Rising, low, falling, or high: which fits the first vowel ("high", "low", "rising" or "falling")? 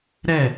falling